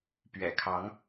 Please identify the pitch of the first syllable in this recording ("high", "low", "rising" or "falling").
low